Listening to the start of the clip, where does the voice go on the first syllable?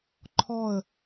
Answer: falling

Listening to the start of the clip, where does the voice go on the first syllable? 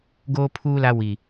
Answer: high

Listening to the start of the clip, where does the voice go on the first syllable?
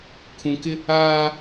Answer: low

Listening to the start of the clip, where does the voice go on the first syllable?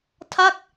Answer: falling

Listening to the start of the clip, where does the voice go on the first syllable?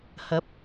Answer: rising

